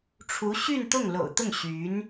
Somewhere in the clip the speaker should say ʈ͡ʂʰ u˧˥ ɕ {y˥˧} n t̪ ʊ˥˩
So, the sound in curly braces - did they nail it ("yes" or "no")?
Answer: yes